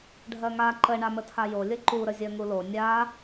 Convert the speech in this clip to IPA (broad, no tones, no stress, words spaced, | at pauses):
ɖʱɜŋa ǃə ɳamətʰajo lʲəǃu ɾəzʲɜŋulo nʲa